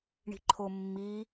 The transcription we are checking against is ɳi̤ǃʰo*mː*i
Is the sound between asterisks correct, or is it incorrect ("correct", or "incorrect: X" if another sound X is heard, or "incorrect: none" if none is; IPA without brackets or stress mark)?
correct